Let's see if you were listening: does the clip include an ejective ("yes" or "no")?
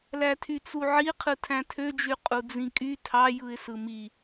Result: yes